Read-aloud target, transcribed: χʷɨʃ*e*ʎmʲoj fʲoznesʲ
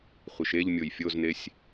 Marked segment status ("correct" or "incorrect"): correct